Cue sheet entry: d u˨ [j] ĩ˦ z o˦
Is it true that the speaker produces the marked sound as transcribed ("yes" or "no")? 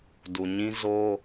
no